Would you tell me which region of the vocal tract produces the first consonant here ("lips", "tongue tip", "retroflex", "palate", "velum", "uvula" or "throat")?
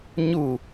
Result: palate